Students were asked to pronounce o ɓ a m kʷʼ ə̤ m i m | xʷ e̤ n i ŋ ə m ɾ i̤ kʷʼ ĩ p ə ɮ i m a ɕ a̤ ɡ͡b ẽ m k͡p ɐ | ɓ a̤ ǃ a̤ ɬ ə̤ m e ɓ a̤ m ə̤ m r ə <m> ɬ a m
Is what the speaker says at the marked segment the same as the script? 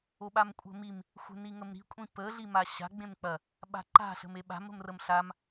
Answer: yes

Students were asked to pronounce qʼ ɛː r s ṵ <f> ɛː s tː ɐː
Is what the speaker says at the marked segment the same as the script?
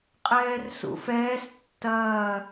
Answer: yes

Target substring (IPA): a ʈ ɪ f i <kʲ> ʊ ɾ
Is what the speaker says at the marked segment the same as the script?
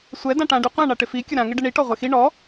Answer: yes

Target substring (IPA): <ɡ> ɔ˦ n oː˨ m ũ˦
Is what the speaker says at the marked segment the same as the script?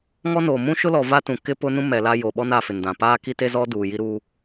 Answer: no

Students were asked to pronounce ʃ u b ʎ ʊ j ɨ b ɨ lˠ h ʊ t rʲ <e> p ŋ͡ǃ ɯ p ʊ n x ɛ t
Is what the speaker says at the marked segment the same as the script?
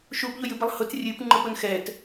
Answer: no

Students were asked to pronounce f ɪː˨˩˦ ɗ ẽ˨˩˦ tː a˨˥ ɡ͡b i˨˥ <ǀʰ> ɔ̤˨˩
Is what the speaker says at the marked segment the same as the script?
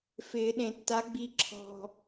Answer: no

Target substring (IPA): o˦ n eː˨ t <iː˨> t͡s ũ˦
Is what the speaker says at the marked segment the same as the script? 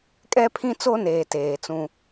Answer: no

